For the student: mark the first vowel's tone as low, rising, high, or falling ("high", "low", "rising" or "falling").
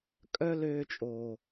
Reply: high